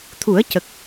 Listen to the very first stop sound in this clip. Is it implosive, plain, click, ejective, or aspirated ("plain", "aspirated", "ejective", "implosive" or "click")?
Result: aspirated